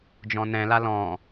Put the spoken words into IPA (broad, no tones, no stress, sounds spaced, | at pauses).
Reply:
d͡ʒ ɔ̃ n ɛ̃ l a l ɔ̃